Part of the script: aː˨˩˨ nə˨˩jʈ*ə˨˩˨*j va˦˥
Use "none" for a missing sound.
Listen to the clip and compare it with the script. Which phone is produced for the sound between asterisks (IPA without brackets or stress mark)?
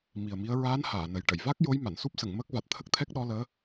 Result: ə˨˩˨